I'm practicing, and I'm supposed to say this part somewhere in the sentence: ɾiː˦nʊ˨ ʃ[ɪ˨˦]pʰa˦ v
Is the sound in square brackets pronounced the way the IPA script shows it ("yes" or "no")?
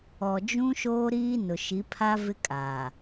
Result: no